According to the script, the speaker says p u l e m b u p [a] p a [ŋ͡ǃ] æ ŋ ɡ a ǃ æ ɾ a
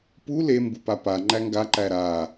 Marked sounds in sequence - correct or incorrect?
correct, correct

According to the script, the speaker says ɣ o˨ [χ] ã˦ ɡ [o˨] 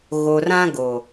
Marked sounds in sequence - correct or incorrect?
incorrect: r, correct

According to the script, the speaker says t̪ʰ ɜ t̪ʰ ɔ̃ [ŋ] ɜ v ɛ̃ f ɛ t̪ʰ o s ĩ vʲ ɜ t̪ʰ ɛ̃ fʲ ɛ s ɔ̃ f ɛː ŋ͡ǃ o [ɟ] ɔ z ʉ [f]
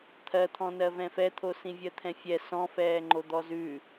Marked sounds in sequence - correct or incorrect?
incorrect: n, incorrect: d̪, incorrect: none

